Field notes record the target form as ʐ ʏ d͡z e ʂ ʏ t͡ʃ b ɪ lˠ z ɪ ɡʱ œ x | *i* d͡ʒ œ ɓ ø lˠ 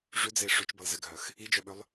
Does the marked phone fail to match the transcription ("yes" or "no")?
no